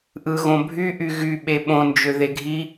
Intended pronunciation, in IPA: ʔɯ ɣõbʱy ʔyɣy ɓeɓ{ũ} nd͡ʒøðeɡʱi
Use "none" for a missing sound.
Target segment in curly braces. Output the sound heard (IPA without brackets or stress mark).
õ